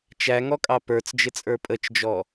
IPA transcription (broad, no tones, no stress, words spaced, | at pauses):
t͡ʃæŋɔkʼɑ pə˞t͡sd͡ʒɪt͡sʼə˞ pʼət͡ʃd͡ʒɔ